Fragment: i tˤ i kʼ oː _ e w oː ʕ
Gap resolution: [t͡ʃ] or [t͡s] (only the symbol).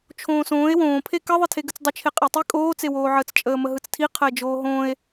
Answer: t͡s